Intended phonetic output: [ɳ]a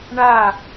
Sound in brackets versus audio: correct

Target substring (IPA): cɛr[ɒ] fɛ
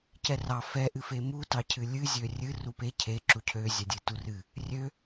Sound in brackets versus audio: incorrect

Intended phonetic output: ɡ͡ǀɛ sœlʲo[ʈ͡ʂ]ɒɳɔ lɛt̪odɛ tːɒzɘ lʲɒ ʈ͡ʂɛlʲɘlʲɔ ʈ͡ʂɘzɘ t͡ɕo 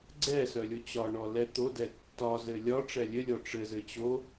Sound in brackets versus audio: incorrect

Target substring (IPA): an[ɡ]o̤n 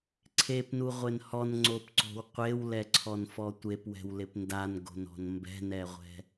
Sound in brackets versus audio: correct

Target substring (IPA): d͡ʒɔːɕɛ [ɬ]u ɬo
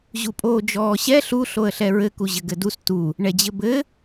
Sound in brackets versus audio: correct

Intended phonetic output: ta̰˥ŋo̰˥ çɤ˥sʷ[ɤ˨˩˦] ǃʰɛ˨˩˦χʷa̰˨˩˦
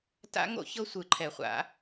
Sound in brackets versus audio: incorrect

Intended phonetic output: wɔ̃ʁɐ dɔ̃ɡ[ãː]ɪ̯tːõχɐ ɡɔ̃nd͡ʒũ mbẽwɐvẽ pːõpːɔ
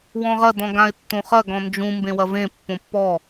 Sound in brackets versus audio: incorrect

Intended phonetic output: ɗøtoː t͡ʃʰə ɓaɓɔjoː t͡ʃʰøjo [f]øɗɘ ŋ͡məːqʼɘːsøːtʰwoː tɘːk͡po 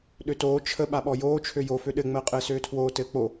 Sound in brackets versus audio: correct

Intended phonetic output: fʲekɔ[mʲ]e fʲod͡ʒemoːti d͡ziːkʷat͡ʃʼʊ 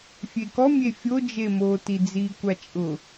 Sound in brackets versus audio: correct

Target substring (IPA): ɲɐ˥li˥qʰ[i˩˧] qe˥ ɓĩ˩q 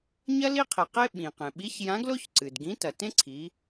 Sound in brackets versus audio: incorrect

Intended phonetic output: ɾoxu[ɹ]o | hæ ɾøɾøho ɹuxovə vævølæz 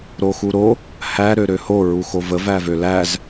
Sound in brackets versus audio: incorrect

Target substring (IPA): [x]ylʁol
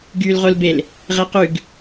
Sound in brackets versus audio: incorrect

